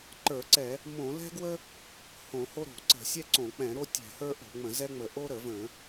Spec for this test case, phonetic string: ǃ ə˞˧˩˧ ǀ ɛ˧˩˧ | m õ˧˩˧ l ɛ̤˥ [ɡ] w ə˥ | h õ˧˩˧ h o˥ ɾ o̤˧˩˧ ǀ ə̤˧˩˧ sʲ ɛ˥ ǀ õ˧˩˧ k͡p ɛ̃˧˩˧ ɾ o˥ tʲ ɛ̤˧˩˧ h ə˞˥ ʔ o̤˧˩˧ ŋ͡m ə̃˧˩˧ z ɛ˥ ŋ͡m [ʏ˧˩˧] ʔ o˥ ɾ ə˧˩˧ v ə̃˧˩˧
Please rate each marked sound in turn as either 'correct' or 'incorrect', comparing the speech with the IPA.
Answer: correct, incorrect

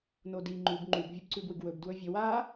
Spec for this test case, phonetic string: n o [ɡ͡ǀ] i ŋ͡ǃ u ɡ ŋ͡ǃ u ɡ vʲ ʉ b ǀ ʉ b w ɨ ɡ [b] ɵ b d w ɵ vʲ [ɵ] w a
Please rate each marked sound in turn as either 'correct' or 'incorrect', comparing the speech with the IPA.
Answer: incorrect, incorrect, correct

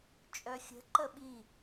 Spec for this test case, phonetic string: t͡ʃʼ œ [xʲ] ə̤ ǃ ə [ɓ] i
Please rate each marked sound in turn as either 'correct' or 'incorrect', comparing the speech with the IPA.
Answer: correct, correct

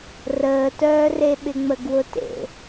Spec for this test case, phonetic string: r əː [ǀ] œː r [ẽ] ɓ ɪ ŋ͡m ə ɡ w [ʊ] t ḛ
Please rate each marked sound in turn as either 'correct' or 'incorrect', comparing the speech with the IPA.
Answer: incorrect, incorrect, correct

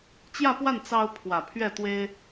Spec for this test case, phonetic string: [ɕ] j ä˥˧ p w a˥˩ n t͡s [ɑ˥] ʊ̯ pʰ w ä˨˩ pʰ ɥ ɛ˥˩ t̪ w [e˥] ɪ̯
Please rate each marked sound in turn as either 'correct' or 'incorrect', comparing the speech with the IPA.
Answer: incorrect, correct, correct

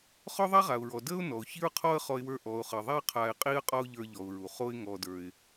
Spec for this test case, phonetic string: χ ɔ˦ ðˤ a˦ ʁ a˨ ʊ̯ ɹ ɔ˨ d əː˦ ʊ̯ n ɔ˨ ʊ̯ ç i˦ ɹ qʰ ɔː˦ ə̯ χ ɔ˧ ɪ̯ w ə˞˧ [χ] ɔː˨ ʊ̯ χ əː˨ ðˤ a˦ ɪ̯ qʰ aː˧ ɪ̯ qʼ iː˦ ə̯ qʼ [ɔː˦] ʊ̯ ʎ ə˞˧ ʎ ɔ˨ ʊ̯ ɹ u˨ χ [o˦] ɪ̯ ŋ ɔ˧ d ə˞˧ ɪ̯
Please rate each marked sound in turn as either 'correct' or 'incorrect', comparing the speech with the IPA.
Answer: incorrect, incorrect, correct

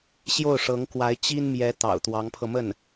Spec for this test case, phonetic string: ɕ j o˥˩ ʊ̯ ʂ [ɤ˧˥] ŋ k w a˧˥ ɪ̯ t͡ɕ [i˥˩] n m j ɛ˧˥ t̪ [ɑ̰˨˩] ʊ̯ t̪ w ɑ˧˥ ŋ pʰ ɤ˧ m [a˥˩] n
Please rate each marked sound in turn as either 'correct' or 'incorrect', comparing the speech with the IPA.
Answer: correct, incorrect, correct, incorrect

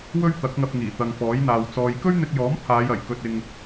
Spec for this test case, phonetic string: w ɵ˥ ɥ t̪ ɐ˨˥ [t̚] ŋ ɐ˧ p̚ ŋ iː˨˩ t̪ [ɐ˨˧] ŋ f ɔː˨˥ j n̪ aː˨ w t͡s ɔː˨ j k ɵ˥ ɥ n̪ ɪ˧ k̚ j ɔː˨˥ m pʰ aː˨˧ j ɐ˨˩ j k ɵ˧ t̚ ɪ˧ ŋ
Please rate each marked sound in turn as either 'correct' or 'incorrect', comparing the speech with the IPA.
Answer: incorrect, incorrect

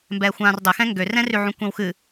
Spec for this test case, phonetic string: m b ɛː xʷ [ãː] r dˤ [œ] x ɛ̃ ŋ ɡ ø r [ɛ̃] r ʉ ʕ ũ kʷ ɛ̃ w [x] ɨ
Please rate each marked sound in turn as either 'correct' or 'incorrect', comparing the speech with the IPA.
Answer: correct, incorrect, correct, correct

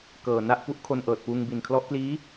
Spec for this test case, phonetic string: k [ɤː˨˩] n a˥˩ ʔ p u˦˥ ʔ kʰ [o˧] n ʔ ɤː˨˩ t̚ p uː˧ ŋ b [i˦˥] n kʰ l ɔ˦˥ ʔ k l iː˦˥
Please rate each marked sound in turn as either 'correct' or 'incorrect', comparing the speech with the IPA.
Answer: correct, correct, incorrect

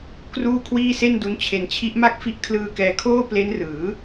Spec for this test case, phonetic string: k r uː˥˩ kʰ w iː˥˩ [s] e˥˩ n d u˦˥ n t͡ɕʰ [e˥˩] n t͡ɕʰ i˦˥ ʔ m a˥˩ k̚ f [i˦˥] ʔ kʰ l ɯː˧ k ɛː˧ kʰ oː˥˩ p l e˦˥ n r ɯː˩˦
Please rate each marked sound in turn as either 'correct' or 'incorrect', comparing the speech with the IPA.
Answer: correct, incorrect, correct

